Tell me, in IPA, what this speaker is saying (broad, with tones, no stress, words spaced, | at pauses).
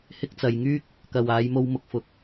hɪ˥k̚t͡sɐ˨˧j ŋyː˥k̚ | kɐ˨waː˨˧jmo˧w mʊ˨k̚fʊ˨k̚